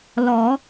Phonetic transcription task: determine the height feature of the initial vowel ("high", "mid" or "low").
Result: mid